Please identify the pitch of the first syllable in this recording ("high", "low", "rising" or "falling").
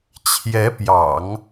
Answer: rising